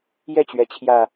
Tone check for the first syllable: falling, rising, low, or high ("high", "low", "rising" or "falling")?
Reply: falling